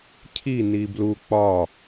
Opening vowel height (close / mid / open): close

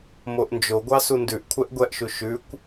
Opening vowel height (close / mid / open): mid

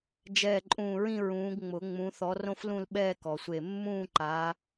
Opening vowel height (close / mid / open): mid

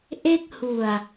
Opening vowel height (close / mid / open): mid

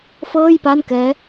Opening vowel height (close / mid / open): mid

